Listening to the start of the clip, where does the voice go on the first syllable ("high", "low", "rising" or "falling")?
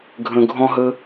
high